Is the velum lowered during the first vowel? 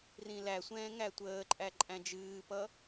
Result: yes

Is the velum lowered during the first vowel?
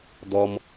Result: no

